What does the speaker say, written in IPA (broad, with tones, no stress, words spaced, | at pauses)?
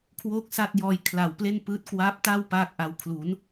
kʰwoː˥˩k̚sa˥˩t̚jɔː˧j kʰla˨˩wple˥˩npɯː˦˥t̚ kwa˦˥p̚ta˥˩w paː˥˩k̚ʔa˧w kʰlu˩˦n